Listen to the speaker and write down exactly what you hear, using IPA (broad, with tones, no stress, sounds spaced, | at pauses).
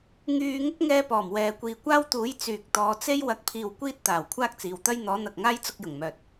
ŋ yː˧ ŋ ʊ˥ k̚ ŋ ɛː˧ p ɔː˨˩ m w ɛː˨ kʷ iː˨ kʷ aː˥ w t̪ uː˨˥ j t͡s yː˨ k̚ t̪ ɔː˨˧ t͡s e˥ j w ɐ˨˥ k̚ pʰ iː˨ w kʷ iː˥ t̚ t̪ aː˨˩ w kʷʰ aː˥ k̚ t͡s iː˨ w t̪ ɐ˥ j n̪ ɔː˨˥ n̪ ɐ˨ k̚ ŋ aː˥ j t͡s ʊ˧ k̚ j ʊ˨˩ ŋ m œː˨ t̚